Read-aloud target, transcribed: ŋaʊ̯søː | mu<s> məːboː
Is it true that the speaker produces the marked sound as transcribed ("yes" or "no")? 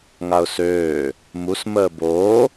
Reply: yes